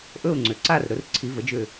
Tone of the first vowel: falling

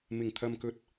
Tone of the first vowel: low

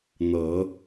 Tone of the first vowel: low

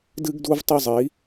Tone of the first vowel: high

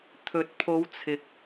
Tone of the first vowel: rising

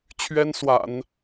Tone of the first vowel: high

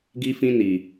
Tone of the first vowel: high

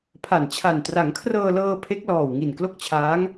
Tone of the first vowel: low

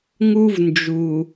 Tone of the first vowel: high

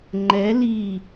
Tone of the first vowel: rising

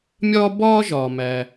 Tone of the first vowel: high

